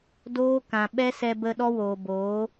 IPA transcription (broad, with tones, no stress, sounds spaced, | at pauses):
d oː˦ k ã˨ ɓ ɛ˦ s ɛ˧ b ə˧ ɗ ɔ˦ w oː˨ b oː˨˦